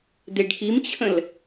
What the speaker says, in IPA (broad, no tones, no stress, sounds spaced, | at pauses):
d̪ e ɖ k i m t͡ɕʰ ə̃ l